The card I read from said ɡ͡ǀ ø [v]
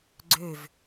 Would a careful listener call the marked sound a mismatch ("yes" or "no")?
no